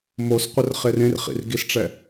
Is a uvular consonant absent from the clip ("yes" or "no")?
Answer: no